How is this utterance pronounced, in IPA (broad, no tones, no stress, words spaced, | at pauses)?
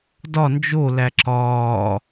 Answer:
dɒ nd͡ʒolæ ǁɒː